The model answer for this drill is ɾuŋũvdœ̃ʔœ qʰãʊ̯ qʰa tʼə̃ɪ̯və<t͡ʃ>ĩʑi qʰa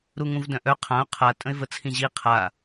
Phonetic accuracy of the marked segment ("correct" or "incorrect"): incorrect